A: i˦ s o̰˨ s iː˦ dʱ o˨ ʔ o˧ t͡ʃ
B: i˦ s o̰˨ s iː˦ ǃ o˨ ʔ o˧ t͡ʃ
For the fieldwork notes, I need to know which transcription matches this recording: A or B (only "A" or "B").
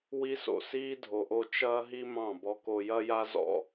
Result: A